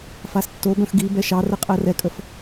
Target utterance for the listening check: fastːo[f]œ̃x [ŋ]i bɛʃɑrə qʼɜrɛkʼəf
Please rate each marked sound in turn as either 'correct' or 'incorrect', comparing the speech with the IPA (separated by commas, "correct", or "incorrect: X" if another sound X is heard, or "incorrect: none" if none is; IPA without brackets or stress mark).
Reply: incorrect: b, incorrect: ɡ